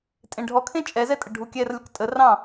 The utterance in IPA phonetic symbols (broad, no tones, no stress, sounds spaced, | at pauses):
tʼ ẽ ɖʱ ɔ kʰ ẽ t͡ʃʼ ɛ z ɛ tʼ ə ɖʱ u kʲ ɛ r lʲ ɔ k tʼ ə r ɑ̃